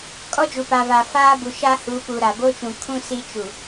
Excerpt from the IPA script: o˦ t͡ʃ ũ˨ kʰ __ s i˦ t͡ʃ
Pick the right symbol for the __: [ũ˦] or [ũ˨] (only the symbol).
ũ˦